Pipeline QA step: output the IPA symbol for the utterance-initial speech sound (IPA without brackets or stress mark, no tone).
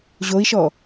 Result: ʑ